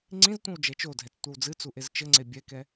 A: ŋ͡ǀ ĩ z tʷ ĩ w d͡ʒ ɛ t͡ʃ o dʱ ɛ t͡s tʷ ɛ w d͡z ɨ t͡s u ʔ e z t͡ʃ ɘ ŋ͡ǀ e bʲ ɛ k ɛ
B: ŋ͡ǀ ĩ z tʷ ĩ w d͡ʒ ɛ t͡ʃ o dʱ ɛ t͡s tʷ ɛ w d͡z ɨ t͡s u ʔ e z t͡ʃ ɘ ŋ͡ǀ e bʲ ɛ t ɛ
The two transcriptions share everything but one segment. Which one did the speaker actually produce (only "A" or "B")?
A